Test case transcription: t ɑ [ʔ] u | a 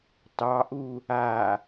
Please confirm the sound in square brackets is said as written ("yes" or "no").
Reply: yes